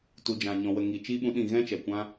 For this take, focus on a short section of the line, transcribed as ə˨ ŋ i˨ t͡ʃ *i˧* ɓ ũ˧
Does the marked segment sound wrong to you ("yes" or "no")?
yes